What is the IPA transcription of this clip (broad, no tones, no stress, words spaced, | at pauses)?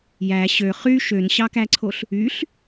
jæ ɕø χy ʃønɕɑkæǀʰoɬ | yɬ